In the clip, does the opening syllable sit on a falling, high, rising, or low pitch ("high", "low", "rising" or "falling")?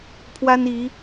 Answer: high